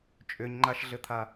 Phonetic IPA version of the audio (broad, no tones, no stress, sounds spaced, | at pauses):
t͡ʃʼ ʏ ɲ ŋ͡ǃ a ʃ ɮ ɘ t̪ʰ a